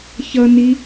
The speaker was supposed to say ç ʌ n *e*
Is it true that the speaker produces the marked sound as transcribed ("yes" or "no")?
no